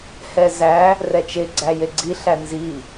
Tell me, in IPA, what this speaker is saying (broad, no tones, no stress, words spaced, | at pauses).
hɛzæ | rɛt͡ʃe ɡ͡ǀæjeɡ͡ǀi ɬænzi